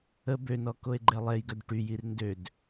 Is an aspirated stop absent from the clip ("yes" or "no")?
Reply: yes